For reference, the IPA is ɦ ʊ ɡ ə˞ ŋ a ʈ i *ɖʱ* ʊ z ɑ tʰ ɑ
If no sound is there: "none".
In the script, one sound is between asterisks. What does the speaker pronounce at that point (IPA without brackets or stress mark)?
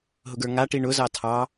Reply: ɳ